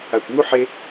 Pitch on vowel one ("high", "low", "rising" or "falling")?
low